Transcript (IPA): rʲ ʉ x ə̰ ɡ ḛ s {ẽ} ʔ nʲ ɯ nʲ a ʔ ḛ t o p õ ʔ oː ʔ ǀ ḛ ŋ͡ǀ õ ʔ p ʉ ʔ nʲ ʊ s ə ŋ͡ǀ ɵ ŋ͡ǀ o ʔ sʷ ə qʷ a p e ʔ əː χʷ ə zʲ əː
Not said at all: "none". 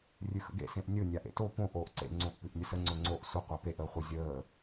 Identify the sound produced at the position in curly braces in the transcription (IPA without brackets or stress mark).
ẽ